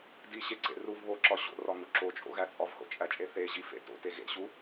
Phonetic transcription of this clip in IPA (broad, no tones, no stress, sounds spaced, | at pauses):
d i ɕ e ǀ ḛ r u v β o ǁ ɒ ɕ o̰ r ɒ ŋ u ǁ o t͡ʃʼ o̰ ɣ æ t͡sʼ ɒ v h o̰ t͡ʃʼ æ t͡ʃʼ e θ e ʑ i f ḛ t o̰ t e ɣ ḛ ɕ u